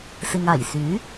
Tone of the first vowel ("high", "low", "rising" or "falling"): low